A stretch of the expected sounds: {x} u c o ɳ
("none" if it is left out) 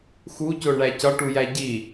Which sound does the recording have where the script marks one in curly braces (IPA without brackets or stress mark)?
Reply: x